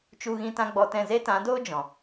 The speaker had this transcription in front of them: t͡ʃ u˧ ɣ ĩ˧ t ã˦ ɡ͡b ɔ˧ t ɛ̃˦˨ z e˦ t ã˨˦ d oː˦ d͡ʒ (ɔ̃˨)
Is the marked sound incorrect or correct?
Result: correct